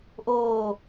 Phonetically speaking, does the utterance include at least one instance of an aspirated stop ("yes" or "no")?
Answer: no